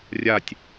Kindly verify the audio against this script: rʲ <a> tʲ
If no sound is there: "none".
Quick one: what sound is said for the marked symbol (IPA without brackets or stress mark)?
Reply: a